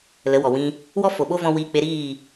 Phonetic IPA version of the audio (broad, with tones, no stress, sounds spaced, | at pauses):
l ə˨˦ w ɔ˨ w ĩ˧ | w ɔ˦ f o˨ ɓ o˦ v ɔ̃˧ w iː˧ k͡p e˧ ɾ iː˦˨